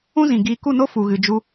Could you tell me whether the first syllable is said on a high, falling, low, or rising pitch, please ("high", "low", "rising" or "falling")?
high